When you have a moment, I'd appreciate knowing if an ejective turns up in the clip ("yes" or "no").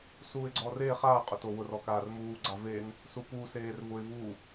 yes